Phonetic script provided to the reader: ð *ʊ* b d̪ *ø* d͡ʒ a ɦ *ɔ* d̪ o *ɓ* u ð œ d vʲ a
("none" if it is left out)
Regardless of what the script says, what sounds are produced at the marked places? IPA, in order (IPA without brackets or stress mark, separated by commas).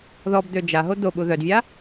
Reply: ɔ, ø, o, ɓ